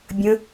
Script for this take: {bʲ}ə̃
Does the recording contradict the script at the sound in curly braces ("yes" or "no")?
no